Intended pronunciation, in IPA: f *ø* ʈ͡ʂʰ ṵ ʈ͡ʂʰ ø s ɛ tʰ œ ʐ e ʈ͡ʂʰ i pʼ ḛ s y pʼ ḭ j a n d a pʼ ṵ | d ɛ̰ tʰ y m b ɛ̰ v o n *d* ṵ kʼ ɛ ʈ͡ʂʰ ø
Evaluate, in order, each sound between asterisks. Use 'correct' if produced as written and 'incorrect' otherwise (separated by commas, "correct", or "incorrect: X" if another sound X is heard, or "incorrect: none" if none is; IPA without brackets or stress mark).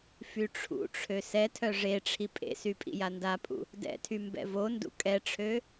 incorrect: y, correct